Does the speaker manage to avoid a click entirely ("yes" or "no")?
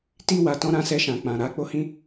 yes